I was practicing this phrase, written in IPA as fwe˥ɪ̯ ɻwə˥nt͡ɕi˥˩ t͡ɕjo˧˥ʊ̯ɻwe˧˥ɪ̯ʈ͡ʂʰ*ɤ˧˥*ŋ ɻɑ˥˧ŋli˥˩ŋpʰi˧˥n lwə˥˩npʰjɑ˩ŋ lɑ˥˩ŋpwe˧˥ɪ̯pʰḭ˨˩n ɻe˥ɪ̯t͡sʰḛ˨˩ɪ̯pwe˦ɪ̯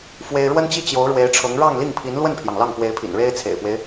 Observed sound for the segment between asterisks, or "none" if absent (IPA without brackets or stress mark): ɤ˧˥